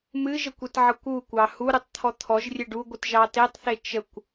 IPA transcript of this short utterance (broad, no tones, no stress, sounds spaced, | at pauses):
m ɨ ʒ ə kʷ e t ʕ ʌ kʷ u kʷ ɑ h u ɾ ɨ tˤ t̪ʰ ɔ t̪ʰ ɔ ʒ rʲ e ɖ u ɡʷ ɨ t ʒ ɑ t e tˤ θ e t͡ʃ ə kʷ